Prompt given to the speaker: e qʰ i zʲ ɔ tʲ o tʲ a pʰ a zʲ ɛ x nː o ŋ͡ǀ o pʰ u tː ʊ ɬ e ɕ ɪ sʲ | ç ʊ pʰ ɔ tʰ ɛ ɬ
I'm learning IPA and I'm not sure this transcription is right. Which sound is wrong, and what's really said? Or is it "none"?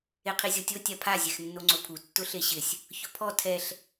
none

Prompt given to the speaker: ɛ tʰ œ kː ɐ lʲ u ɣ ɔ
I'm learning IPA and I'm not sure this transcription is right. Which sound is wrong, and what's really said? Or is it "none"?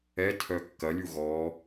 none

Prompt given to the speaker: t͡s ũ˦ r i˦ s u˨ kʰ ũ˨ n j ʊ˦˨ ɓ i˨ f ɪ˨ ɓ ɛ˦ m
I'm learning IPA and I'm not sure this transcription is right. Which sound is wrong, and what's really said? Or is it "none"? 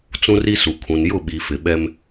none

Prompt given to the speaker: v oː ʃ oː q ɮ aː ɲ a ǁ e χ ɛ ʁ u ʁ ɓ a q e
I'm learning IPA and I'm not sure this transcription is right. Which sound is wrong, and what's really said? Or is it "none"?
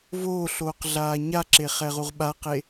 ʃ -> ɬ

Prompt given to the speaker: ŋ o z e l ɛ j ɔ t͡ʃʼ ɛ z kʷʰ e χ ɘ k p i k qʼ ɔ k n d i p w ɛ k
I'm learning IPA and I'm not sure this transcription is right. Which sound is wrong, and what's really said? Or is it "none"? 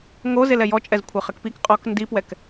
none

